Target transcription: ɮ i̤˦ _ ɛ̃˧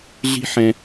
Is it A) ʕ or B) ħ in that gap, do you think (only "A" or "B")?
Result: B